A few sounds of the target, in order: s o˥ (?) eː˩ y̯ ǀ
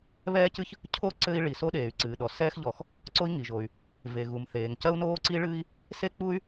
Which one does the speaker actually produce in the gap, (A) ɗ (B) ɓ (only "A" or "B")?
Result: A